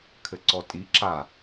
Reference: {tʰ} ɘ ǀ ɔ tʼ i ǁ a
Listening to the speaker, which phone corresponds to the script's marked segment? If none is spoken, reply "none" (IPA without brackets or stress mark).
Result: kʰ